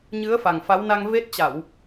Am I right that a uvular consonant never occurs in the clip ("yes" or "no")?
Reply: yes